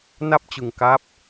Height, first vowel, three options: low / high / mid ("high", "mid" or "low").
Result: low